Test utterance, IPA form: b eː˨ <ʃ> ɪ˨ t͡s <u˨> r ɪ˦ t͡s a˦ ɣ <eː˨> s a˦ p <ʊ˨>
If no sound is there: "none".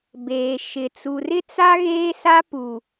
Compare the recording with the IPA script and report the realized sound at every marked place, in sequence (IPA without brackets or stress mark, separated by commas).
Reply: ʃ, u˨, eː˦, u˨